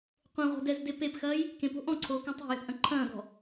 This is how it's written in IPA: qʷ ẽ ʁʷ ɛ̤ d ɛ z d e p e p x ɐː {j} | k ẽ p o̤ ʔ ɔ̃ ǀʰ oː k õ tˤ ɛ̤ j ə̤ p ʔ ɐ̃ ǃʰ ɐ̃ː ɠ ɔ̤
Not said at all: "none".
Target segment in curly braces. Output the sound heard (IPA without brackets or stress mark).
j